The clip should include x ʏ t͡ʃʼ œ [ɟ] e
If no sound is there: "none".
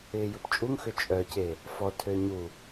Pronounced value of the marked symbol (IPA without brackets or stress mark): c